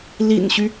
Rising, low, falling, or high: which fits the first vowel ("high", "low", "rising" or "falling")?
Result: low